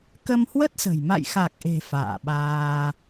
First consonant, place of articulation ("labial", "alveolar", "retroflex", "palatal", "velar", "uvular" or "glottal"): velar